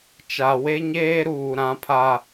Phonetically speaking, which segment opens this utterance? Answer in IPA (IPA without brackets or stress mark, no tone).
t͡ʃ